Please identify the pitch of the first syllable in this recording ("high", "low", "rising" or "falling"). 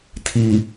low